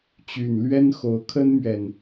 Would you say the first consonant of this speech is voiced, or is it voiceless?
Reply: voiceless